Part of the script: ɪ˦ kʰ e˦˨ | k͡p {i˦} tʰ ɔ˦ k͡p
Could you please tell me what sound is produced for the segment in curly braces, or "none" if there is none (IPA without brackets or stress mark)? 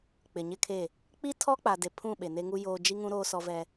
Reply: i˦